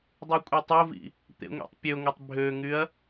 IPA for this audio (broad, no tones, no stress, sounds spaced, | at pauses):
dˤ y kʷʼ i tˤ o v ḭ | t̪ ḛ ŋʷ ḭ tˤ pʲ ø ŋʷ e tˤ bʱ ø ŋ y ɐ̯